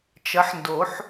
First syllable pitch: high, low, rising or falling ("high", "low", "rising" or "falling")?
rising